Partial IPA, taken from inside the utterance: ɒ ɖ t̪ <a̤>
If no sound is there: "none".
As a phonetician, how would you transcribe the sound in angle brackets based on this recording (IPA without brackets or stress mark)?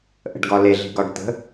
ə̤